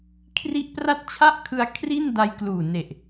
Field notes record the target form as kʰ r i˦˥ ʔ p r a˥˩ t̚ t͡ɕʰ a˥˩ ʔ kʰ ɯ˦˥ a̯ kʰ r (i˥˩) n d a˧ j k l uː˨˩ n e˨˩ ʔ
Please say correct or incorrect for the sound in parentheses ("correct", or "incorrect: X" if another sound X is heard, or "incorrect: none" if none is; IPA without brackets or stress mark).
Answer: correct